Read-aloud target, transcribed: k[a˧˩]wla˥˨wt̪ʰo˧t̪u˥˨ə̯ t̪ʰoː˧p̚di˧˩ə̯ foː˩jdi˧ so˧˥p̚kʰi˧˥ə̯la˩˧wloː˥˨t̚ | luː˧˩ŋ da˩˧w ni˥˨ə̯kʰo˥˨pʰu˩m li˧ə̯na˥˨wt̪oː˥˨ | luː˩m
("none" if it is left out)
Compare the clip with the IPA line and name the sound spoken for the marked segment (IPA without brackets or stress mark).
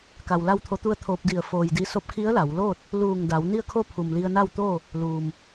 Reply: a˩